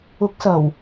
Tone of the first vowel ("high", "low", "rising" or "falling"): rising